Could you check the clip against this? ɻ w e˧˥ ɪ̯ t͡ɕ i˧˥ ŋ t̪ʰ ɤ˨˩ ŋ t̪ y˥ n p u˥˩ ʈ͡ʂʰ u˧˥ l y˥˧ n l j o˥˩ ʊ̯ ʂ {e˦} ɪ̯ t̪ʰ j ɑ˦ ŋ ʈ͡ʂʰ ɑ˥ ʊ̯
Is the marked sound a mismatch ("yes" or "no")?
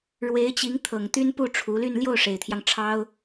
yes